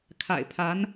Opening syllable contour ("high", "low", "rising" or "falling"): low